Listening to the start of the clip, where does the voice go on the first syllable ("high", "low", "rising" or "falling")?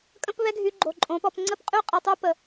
high